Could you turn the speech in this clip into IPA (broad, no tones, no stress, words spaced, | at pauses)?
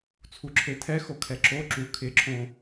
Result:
t͡sʰuǁʰetʰɛxo kʰɛǁo ǁu kʰɪǁʰõ